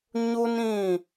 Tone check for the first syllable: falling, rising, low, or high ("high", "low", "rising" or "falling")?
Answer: high